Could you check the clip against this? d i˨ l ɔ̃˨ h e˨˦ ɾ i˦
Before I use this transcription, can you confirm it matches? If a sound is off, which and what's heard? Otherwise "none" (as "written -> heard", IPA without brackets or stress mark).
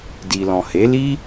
ɾ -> l